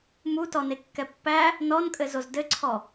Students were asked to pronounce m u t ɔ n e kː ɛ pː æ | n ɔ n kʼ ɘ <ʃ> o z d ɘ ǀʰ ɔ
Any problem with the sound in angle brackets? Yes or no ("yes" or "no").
yes